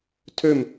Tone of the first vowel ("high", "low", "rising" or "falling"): falling